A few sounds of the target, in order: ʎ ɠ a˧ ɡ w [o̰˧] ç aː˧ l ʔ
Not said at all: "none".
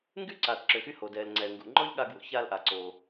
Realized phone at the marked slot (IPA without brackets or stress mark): o̰˧